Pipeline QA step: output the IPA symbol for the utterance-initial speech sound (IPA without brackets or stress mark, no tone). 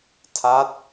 tʰ